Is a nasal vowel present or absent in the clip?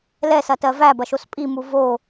absent